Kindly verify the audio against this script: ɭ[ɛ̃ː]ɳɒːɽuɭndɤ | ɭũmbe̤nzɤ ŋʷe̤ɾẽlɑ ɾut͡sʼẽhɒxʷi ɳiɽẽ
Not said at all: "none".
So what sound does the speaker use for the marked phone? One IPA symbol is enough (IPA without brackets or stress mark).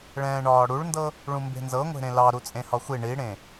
ɛ̃ː